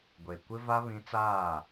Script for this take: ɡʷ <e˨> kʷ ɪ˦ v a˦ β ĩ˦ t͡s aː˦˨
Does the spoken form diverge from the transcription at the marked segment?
no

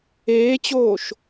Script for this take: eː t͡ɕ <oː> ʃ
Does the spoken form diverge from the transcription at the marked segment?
no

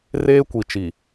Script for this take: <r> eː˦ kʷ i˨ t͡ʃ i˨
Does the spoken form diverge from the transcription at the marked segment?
no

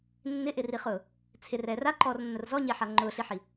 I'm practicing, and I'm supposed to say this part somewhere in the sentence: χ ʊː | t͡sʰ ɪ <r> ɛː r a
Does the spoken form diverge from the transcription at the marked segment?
no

